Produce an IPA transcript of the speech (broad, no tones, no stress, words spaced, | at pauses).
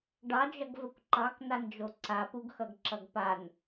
ɖɑd͡ʒʌɡvəkʷ ǃɑknand͡ʒo ǀapuɡxʌɡǁʌɡ pan